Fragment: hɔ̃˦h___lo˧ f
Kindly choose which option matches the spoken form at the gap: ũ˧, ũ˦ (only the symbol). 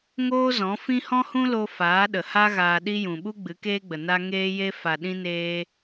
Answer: ũ˦